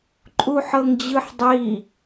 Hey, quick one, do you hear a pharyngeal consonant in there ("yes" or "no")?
yes